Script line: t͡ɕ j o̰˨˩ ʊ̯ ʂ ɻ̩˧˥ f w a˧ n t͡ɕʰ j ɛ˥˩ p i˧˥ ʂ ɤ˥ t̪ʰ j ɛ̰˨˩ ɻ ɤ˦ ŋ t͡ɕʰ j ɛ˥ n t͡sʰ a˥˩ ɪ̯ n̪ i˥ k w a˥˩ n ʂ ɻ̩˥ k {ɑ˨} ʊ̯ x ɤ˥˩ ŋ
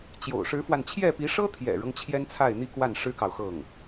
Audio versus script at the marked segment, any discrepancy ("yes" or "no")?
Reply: no